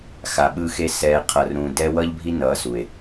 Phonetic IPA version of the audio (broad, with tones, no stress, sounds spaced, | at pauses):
x a˨ ɓ ɯ˧ x e˧ s ɛː˨ qʰ ʌ˨ r ɾ ũ˨ d ɛ˦ w ʌː˦ ʎ bʱ i˦ n ʌː˨˦ s u˨ e̯